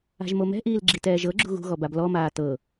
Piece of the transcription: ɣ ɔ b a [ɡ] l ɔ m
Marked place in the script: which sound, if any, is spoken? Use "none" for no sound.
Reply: b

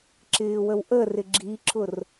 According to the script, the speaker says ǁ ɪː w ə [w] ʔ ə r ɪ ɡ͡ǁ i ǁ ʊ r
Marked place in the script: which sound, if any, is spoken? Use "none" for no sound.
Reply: w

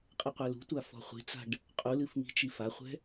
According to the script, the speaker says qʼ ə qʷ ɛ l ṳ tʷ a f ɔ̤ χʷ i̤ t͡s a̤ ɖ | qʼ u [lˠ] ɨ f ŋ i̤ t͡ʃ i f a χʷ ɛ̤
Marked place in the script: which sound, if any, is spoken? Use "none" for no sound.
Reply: l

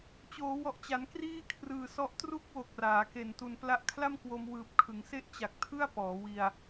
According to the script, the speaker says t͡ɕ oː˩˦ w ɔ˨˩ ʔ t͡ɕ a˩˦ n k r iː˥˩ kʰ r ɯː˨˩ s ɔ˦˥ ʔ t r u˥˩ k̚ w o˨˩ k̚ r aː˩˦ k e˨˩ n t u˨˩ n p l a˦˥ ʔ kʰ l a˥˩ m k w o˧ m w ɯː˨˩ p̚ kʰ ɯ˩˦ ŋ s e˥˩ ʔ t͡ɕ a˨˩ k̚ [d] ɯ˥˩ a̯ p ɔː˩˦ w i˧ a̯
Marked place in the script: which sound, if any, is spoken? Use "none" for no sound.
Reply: tʰ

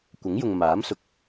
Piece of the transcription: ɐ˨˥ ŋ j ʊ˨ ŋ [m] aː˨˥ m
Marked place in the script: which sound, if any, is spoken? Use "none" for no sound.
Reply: m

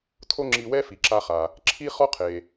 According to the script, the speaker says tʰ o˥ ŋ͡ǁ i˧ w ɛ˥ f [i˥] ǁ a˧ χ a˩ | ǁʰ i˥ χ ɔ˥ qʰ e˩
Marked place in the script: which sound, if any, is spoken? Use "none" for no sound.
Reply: i˩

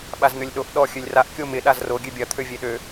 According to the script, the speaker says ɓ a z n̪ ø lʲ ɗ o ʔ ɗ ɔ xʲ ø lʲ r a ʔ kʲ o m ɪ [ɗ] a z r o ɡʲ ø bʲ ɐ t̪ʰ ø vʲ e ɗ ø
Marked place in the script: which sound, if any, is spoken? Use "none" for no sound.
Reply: ɗ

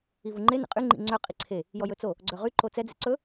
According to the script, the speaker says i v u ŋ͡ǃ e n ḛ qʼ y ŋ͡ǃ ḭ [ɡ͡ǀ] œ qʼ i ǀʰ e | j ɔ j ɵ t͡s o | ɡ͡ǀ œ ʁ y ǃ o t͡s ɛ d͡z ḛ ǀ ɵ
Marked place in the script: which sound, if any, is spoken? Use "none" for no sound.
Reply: ŋ͡ǀ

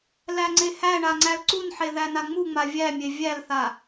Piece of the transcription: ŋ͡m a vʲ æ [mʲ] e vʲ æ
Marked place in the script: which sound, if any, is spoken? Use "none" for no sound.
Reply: mʲ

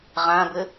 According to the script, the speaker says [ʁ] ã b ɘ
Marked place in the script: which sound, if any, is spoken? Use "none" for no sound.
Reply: ʁ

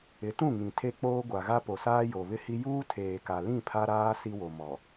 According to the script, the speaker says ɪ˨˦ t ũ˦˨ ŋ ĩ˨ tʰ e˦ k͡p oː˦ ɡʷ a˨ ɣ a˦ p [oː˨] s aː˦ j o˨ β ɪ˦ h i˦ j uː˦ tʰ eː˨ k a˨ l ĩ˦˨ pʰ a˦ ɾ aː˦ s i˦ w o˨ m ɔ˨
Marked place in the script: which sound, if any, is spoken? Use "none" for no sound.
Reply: o˨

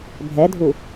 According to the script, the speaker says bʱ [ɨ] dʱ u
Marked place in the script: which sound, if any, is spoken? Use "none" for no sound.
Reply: ɛ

